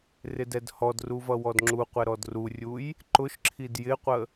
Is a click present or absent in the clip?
present